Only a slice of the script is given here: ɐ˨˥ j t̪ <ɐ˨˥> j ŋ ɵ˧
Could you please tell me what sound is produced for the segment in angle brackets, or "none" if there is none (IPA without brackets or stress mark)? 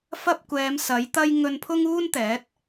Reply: ɐ˥